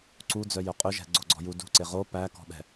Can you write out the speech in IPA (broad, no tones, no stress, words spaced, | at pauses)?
ǀud͡zœjœ qʼøʒɛ̤ ɡ͡ǀoɡ͡ǀɔ̤ju dṳǀe ʁo pækɔ̤ɓɛ̤